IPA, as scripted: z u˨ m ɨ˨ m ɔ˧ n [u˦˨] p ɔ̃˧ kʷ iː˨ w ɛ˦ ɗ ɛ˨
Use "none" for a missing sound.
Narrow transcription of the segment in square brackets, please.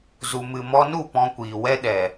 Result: u˦˨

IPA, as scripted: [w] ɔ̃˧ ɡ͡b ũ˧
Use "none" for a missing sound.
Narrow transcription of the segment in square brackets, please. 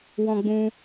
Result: w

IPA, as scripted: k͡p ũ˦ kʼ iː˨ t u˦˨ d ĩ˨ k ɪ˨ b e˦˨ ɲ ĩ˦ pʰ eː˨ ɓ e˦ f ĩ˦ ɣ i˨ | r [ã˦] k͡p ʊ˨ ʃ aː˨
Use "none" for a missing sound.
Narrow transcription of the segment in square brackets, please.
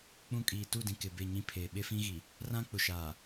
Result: ã˦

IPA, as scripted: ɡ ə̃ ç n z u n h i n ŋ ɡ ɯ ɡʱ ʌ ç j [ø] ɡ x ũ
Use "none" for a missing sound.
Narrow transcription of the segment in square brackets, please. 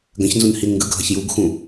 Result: u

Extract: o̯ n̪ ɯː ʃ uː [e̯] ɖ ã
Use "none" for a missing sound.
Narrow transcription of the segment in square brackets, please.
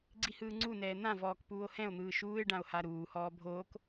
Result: e̯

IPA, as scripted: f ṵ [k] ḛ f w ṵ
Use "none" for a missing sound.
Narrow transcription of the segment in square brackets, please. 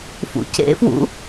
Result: c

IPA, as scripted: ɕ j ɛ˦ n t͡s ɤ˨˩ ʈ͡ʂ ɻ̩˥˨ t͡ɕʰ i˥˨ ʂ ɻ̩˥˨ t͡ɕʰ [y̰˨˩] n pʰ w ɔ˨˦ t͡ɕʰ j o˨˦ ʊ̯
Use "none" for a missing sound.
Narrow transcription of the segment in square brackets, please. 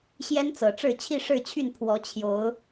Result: y˥˨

